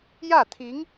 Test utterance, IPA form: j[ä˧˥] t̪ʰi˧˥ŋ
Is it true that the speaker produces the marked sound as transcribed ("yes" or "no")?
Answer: no